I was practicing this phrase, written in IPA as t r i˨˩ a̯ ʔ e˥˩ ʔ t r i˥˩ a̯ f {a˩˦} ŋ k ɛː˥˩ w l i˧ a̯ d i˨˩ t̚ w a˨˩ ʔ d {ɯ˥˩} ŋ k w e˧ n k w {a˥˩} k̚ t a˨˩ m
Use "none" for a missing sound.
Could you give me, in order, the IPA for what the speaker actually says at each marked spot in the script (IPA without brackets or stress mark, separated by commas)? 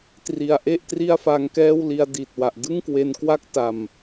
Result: a˧, ɯ˥˩, a˥˩